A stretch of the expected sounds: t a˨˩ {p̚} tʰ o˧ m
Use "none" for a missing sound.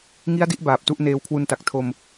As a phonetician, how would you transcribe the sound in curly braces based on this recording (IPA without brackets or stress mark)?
k̚